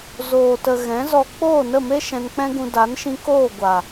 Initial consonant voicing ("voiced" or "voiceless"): voiced